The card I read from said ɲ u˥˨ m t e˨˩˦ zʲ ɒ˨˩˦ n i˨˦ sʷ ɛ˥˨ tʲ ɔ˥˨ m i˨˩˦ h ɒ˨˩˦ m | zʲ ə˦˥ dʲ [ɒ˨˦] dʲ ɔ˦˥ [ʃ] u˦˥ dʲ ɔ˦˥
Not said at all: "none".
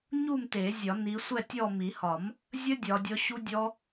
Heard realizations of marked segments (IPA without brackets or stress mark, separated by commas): ɒ˨˦, ɕ